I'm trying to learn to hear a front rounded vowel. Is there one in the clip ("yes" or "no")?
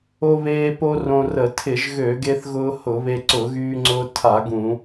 yes